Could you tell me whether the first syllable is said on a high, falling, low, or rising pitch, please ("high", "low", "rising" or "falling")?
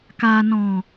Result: low